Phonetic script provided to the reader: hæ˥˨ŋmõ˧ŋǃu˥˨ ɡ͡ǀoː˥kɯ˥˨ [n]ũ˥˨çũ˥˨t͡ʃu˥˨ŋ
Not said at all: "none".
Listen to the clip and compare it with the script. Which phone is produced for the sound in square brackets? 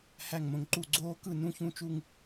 n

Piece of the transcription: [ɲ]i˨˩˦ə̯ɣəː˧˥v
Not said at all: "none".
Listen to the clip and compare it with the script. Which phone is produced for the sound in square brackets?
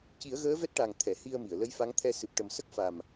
c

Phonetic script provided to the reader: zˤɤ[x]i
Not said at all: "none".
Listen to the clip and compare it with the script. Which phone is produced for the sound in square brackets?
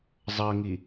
ŋ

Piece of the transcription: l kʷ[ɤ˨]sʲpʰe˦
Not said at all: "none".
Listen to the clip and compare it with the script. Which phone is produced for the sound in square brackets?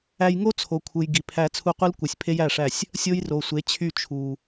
ɯ˨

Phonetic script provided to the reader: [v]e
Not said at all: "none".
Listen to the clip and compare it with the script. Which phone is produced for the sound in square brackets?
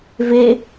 v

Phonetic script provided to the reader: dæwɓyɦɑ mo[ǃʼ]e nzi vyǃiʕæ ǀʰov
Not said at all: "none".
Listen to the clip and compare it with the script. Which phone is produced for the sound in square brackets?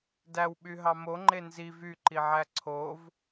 ŋ͡ǃ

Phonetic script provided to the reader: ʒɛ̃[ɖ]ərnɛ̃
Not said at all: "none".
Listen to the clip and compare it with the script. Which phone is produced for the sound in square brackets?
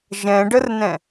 ɖ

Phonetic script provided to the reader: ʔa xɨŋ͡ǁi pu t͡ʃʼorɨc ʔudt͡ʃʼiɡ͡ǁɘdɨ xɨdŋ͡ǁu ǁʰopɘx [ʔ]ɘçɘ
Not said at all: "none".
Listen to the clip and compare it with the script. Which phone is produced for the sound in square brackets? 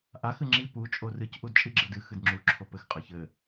qʼ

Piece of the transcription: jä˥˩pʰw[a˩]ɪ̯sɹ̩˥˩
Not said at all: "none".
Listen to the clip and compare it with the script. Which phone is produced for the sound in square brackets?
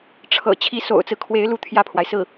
a˩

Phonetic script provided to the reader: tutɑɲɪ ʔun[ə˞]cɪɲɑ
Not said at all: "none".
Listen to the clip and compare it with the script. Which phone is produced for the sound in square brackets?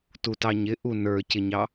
ə˞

